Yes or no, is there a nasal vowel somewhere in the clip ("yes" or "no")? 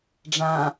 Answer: yes